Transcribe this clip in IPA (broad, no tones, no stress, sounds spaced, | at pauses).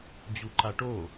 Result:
d͡ʑ u ǃ a ʈ o